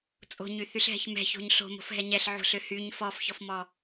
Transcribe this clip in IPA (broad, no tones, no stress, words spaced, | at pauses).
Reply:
t͡sʼo̤ɲyθyɬɦɛ̤ç mɛ̤ço̤ɲ ɬo̤mo̤fɦɛ ɲɛɬʕo̤ɬø hyɲ fɔfçɔfmɔ